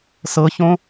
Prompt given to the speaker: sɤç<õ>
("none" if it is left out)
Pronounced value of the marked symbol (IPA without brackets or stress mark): õ